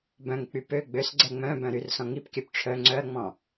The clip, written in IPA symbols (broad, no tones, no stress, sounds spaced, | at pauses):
b œ̃ ŋ k͡p y p ø ɡ͡b ø s ɡ͡ǀ ɛ ŋ͡m œ̃ b œ̃ ɾ y r s ɔ̃ ŋ i p kʲ œ p ʈ͡ʂʰ œ ŋ͡ǀ œ ɐ̯ ŋ͡m ɔ̃